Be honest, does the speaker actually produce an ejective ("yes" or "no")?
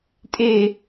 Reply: yes